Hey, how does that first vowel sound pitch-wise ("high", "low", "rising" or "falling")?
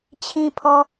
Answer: low